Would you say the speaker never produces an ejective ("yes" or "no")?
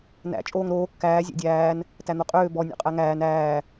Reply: no